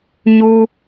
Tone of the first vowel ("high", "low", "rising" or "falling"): high